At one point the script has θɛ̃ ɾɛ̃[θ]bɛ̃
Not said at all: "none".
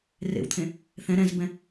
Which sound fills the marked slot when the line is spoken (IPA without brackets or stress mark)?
z